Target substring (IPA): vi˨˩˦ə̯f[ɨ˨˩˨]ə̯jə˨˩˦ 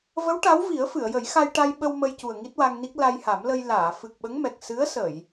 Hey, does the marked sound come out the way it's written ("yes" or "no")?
yes